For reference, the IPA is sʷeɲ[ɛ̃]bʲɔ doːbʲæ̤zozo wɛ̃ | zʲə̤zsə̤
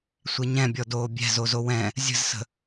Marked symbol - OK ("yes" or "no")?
yes